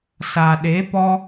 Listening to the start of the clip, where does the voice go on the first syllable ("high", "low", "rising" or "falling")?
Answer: low